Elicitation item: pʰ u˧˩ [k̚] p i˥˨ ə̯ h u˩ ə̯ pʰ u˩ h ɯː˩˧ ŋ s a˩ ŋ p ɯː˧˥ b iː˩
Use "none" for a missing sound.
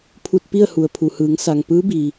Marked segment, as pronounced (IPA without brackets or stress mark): t̚